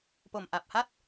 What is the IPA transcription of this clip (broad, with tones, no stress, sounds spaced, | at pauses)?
p o˨˩ m ʔ a˨˩ p̚ h a˥˩ t̚